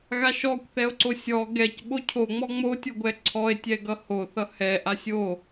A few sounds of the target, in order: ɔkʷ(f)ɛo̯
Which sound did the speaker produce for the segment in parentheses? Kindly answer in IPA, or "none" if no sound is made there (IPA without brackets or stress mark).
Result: θ